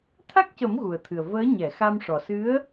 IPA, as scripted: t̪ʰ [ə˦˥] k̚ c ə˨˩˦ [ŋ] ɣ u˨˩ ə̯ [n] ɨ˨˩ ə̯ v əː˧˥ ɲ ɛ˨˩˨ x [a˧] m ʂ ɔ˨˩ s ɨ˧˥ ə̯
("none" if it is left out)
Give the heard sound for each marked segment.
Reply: a˦˥, m, t̪ʰ, a˧

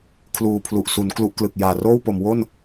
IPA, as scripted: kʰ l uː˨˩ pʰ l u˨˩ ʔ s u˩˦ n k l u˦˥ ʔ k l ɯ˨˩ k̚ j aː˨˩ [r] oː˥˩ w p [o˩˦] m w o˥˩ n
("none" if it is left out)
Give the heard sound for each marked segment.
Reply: r, o˩˦

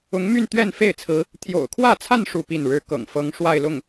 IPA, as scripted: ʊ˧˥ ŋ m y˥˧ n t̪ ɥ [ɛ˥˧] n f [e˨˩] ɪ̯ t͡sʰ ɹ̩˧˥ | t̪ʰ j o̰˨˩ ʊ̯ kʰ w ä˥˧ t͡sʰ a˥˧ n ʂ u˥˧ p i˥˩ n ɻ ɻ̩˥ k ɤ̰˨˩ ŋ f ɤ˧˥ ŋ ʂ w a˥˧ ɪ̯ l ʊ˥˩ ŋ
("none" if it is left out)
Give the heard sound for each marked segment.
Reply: ɛ˥˧, e˥˩

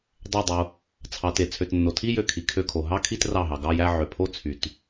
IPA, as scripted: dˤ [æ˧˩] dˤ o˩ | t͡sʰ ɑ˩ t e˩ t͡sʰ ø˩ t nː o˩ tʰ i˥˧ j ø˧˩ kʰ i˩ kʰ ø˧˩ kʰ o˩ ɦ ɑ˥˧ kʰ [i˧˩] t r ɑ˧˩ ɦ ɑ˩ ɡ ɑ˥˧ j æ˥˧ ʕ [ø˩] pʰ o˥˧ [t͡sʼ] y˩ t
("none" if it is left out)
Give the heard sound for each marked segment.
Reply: æ˧˩, i˥˧, ø˩, t͡sʰ

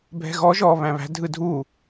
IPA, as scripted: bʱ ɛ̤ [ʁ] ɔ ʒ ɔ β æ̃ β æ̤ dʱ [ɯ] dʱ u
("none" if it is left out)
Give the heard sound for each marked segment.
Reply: ɣ, ɯ

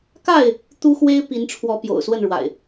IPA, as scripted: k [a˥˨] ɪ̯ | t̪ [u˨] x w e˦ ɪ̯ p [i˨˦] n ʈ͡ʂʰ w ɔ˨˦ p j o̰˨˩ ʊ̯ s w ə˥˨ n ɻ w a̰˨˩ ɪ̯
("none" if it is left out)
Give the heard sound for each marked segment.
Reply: a˥˨, u˦, i˨˦

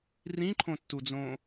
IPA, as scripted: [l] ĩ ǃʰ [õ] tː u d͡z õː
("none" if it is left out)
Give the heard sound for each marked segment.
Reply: r, õ

